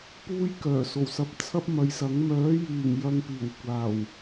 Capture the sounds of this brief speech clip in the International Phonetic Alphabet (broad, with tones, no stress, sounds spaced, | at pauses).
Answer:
p uː˧ j k œː˨˩ s o˨˩ w s ɐ˨ p̚ t͡sʰ ɐ˥ p̚ m ɐ˨˧ j s ɐ˨˥ ŋ m œː˨˥ j yː˨˩ ŋ j ɐ˨ ŋ p iː˨˩ w kʷ aː˨˩ w